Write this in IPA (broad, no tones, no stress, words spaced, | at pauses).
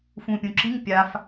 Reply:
fũːpʲũːǁiŋ pʲaf